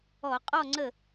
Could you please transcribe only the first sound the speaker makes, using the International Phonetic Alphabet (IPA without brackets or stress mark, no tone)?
ɔ